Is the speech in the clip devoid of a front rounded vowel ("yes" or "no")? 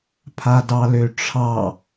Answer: no